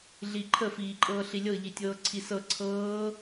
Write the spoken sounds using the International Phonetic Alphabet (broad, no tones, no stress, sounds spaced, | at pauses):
ɮ i ǃʰ ə f iː ǃʼ ɤː ɬ i lʲ ɤ ʎ i tʲ ɤː ǀʰ i s ɤ ǀʰ ɤː